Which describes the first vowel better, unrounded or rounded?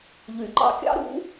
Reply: rounded